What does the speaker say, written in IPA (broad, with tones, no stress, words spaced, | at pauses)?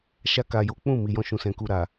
ʃa˧ka˨jo˨˦ k͡pũ˦˨ mi˨jɔ̃˧ʃũ˨ sɛ̃˨ku˨ɾa˨